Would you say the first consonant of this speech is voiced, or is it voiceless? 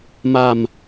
voiced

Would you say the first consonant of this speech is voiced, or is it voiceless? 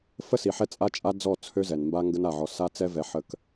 voiceless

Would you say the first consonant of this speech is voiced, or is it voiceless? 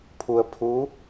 voiceless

